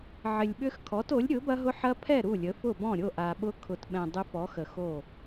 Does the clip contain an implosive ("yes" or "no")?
yes